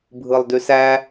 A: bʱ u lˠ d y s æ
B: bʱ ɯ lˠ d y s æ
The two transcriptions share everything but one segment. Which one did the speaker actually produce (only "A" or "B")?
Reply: B